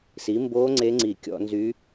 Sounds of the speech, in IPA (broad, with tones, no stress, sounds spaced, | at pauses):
s i˩˥ m b o˧˥ ŋ͡ǀ e˧˥ ŋ͡ǀ i˧˩˧ kʲ ɔ̰˧˩˧ n z y˧˥